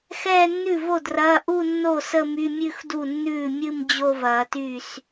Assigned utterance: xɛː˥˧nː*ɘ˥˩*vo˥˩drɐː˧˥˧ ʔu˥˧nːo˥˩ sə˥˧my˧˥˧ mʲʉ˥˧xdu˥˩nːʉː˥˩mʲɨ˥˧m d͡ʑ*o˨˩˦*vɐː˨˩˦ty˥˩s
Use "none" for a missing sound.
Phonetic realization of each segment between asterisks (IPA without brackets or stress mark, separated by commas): ʉ˥˩, o˥˧